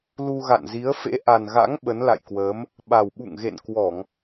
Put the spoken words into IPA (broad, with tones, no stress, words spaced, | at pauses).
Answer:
lu˧ɣa̰˧˨nzi˨˦ə̯ fḛ˧˥ʔa˨˩n ɣa̰˧˥ŋ ɓə˨˦nla̰˧˨jkwəː˨˦m | ɓa˨˩wɓṵ˧˨ŋɣḛ˧˨n kwɔ˧˩˨ŋ